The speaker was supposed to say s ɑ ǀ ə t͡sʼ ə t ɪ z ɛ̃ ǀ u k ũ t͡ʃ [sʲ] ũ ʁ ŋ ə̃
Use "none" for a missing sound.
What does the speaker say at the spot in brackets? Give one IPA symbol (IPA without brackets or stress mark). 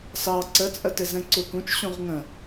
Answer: ɕ